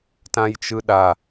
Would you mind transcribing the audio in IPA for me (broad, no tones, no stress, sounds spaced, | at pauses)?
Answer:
t ã j t͡ʃ ɯ ɗ a